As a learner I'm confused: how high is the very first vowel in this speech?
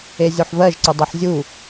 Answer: mid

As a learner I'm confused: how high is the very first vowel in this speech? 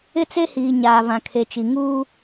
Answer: high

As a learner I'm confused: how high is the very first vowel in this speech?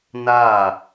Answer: low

